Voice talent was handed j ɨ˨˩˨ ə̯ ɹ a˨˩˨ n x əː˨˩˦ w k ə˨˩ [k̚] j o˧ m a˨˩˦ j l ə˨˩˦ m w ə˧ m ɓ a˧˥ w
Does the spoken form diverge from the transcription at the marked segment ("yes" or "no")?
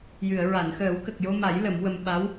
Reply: no